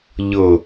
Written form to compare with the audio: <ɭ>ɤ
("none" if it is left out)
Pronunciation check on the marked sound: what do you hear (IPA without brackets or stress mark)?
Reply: ʎ